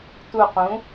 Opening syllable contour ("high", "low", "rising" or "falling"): low